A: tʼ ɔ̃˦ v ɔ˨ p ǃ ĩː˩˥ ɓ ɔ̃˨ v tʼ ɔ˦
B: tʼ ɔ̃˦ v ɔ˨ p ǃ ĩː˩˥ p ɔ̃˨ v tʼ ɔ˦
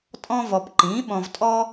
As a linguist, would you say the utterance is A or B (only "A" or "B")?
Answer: A